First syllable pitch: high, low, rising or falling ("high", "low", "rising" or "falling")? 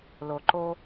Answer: low